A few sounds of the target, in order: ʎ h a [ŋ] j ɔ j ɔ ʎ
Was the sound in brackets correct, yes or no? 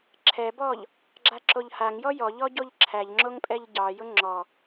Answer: yes